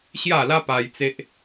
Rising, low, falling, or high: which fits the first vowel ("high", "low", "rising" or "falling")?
falling